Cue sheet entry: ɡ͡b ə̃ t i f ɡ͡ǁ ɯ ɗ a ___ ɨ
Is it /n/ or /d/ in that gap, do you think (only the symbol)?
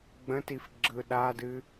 d